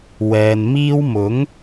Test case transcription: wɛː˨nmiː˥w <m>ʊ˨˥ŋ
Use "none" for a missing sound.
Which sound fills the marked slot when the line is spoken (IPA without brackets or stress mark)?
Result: m